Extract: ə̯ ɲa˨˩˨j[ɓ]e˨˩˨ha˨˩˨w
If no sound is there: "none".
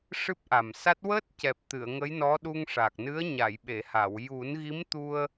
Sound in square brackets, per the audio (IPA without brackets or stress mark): ɓ